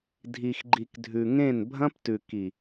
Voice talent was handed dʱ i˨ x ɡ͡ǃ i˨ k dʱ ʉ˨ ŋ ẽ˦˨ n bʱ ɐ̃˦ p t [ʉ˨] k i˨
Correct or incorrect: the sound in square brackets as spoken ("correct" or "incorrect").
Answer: correct